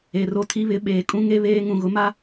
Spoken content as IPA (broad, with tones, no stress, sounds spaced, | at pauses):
e˨ r o˦ tʰ i˦ β ɪ˨˦ ɓ eː˨ kʼ ũ˦ ŋ e˦ β eː˦ ŋ ũ˨ ɣ ʊ˦ m a˦